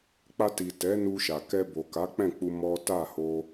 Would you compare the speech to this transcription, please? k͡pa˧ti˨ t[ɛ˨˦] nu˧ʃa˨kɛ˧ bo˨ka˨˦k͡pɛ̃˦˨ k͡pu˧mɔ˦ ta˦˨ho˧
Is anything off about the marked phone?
no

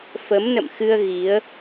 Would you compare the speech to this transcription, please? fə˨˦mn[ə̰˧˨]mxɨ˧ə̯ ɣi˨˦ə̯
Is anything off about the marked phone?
no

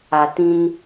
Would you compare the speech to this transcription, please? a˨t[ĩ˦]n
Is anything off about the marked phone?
no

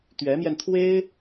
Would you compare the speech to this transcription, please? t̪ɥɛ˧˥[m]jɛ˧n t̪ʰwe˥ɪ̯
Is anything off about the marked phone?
no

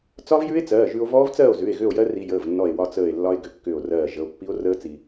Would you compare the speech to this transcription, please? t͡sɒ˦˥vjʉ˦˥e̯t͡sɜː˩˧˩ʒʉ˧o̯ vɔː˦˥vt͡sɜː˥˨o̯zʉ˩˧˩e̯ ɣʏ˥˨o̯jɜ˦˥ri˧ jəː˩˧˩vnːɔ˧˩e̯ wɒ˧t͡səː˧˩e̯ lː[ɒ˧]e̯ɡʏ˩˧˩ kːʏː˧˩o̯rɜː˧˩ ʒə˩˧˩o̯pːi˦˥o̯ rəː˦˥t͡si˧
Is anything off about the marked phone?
no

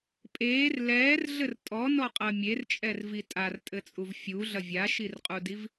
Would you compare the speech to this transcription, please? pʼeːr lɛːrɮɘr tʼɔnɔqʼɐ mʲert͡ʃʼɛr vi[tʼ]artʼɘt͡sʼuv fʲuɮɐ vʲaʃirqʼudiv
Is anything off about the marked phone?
no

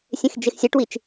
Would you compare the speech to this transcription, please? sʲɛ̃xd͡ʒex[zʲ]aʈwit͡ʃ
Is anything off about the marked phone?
yes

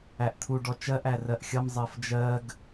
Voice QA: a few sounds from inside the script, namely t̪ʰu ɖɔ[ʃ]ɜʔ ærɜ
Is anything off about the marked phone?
yes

